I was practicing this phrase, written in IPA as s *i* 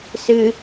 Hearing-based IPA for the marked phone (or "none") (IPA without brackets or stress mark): ɨ